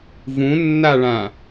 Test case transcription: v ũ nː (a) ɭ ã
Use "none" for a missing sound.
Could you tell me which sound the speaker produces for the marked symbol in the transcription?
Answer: a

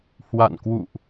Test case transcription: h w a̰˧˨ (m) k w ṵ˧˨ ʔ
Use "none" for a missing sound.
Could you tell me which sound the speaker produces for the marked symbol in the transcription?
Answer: n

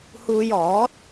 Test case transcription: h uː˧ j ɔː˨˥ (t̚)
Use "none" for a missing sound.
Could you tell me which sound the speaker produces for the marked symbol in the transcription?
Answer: t̚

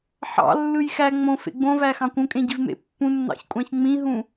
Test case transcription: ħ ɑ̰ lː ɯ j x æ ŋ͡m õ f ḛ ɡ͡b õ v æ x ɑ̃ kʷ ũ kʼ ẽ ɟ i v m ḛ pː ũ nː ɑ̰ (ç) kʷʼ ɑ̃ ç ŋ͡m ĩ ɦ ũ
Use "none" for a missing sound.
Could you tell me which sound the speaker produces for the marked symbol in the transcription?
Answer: ç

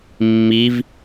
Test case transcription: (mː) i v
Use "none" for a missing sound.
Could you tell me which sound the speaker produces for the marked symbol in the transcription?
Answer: mː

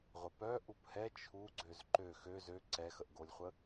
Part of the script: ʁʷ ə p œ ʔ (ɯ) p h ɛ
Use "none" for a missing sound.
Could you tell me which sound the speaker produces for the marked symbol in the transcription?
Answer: u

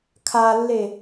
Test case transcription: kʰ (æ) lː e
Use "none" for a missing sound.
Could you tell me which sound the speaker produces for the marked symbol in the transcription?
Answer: a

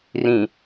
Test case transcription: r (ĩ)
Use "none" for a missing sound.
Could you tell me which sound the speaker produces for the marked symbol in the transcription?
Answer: ĩ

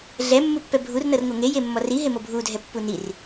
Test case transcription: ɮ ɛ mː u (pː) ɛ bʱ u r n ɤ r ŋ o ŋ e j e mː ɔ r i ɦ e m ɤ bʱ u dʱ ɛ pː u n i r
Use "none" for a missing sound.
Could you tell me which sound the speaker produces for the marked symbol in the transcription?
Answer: pː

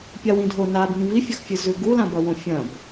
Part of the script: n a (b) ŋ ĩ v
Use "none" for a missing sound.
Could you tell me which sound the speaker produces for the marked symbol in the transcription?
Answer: b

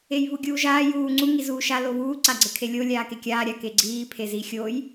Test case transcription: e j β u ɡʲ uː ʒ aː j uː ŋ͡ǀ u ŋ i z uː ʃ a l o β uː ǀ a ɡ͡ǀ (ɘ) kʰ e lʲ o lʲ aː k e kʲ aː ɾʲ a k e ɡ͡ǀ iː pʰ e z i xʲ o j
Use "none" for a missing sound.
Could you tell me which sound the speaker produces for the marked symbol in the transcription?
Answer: ɘ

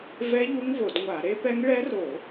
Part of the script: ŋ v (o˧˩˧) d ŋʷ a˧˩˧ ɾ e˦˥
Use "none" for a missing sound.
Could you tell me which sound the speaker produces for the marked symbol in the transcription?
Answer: o˧˩˧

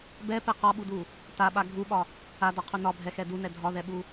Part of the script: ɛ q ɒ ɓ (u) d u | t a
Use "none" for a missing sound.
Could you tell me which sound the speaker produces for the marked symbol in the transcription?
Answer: u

